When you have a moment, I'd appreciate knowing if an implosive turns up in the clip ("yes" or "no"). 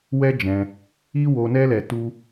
no